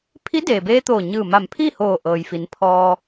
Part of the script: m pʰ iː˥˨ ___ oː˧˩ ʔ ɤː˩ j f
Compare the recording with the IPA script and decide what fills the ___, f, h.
h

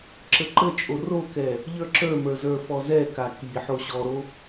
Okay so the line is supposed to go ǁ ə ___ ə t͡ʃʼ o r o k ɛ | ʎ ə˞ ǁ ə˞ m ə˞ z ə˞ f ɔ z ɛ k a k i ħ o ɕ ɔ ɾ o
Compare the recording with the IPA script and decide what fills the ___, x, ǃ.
ǃ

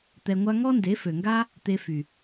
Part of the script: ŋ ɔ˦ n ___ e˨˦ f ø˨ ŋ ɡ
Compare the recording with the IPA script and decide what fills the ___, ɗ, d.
d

